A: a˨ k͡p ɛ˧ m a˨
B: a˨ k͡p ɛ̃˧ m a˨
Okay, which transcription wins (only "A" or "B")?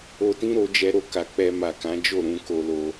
A